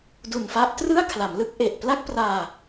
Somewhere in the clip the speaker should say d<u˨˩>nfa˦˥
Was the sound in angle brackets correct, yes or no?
yes